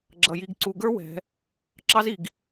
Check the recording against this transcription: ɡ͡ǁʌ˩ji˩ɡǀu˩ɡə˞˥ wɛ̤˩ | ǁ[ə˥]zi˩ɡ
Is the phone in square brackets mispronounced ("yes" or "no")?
yes